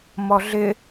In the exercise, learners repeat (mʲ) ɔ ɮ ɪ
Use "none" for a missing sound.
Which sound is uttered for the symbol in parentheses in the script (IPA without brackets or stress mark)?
m